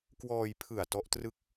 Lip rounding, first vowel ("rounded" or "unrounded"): rounded